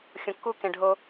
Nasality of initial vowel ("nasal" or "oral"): nasal